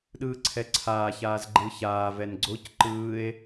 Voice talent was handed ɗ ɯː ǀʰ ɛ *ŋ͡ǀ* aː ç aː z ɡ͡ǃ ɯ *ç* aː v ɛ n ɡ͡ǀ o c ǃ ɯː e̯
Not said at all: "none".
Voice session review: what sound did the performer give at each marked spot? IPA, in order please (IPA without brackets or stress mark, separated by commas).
ǀʰ, ç